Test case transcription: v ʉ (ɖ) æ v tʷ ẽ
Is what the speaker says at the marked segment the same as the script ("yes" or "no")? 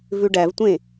yes